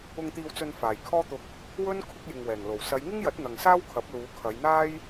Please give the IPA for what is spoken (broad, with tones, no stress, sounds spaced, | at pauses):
ʊ˧ ŋ t̪ iː˧ w t͡s ɵ˧ n f aː˨˩ j kʰ ɔː˥ t̪ ʊ˧ k̚ | w ɵ˥ n kʰ ʊ˥ k̚ j ɪ˨ ŋ w ɛː˨˩ ŋ l o˨˩ w s ɐ˨˧ j ŋ ɪ˥ ŋ j ɐ˨˥ t̚ n̪ ɐ˨ ŋ s aː˥ w kʰ ɐ˨˥ p̚ l uː˨˧ kʰ ɐ˨˧ j n̪ aː˥ j